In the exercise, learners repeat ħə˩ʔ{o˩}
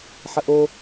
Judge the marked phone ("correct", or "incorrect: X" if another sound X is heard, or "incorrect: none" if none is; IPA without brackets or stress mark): correct